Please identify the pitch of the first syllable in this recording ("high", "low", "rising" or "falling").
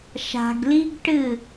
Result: low